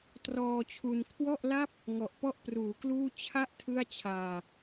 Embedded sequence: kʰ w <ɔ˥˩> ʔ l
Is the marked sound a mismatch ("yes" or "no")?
no